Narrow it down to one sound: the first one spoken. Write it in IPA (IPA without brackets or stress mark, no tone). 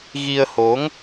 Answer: ɣ